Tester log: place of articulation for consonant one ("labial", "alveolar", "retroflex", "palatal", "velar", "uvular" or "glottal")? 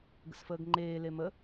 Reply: velar